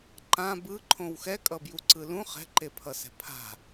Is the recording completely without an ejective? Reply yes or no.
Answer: no